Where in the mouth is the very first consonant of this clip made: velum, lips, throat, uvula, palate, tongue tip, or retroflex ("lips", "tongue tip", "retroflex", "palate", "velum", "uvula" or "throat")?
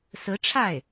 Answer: tongue tip